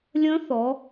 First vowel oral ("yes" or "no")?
no